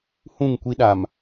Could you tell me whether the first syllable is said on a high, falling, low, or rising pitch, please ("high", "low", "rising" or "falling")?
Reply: falling